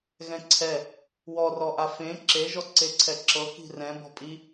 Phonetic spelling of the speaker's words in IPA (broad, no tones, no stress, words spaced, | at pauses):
ɣɛ̃ǀʰɛ | wɔrɔʔa fẽ ǁeʒɔ ǀeǀʰɛǁɤ ki̤rɛ̃ bɔ̤pʼi